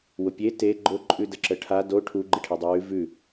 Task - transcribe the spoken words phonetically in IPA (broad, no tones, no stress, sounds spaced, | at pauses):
w ʊ pʲ e t e ɡ͡ǃ ʊ ǃʼ ʉ d ə ǁ ə ʈʰ a d o ʈʰ u ɡ͡ǃ ɪ ʈʰ e dˤ ʉ w ʉ v ʉ